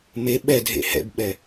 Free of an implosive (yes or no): no